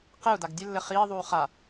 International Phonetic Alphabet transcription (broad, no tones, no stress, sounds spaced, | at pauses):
q e u̯ d a ɡ dʲ ɘ lː ɘ χ iː ðˤ uː χ a